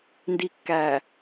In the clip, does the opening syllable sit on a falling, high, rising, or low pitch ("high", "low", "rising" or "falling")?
low